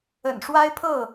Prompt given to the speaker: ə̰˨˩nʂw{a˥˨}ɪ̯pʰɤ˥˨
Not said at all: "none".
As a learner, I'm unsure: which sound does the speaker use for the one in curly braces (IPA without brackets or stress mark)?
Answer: a˦